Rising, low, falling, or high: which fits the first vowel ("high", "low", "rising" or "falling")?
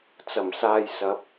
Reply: low